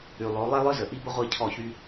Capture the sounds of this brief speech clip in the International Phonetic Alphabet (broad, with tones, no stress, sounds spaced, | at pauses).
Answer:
y˨ lˠ o˨˦ lˠ e˦ lˠ œ˦ z ə˨ ʔ i˦ b ə˦ ʁʷ i˦˨ cʰ ɔ˦˨ ç y˦